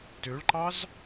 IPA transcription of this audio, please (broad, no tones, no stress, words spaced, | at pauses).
tøɭǃɑz